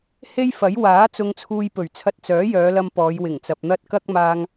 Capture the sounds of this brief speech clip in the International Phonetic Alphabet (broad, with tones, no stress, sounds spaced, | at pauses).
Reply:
h e˥ j f ɐ˨˥ j w aː˨˥ t͡s ʊ˧ ŋ t͡sʰ uː˧ j p ɵ˨˩ ɥ t͡sʰ ɐ˧ t̚ t͡s œː˨˥ j œː˨˧ l ɐ˧ m p ɔː˨˧ j w ɪ˨˩ ŋ t͡s ɐ˨ p̚ n̪ ɐ˥ t̚ k ɐ˥ k̚ m aː˧ ŋ